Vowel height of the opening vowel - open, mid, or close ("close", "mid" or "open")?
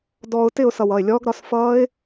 mid